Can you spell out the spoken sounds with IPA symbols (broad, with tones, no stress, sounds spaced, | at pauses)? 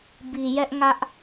b i˨ j ɛ˦ ʔ ŋ ä˦ ʔ